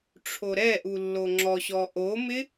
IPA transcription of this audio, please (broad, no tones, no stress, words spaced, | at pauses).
ʈ͡ʂʰoɾɛʔu lːoŋ͡ǁɔɕɔ ʔomɪ